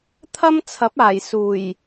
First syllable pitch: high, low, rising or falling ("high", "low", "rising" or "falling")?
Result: high